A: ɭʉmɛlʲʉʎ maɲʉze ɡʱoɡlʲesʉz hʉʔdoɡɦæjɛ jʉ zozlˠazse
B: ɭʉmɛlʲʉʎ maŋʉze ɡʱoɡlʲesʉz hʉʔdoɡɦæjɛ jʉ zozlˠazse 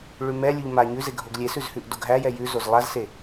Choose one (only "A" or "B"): A